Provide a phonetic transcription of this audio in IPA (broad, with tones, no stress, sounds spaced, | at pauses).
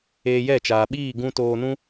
eː˧ j ɛ˦˨ t͡ʃ aː˨ ɓ iː˦˨ ɡ ũ˧ t oː˧ n ũ˦